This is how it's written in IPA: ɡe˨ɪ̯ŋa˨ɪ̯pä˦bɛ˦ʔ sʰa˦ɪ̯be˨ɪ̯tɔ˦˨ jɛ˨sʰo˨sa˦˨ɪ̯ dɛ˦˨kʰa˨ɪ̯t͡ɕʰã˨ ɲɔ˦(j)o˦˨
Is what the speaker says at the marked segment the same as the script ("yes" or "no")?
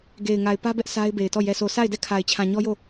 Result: yes